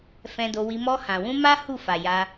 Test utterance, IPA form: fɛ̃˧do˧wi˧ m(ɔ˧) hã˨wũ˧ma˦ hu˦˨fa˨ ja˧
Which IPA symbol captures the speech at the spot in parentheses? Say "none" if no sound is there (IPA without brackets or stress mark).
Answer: ɔ˧